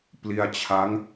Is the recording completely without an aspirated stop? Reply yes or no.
no